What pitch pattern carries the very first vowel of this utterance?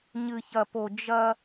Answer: low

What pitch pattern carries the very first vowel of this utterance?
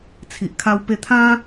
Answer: low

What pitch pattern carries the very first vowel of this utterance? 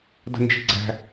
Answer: high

